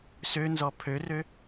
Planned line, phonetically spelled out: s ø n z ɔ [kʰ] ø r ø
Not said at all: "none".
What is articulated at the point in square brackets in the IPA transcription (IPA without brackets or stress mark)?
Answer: pʰ